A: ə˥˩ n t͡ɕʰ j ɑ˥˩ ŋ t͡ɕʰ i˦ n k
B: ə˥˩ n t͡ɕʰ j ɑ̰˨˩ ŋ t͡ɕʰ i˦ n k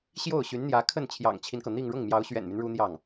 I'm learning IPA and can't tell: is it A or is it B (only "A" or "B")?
B